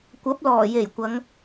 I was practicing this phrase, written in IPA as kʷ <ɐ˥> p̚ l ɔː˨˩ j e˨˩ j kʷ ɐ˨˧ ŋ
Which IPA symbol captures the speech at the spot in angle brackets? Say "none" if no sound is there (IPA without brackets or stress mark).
ɐ˨˥